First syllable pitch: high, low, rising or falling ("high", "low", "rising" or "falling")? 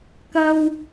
high